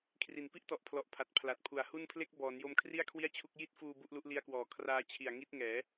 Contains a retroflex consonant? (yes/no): no